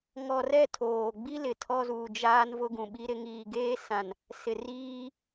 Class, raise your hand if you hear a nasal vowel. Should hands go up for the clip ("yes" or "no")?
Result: yes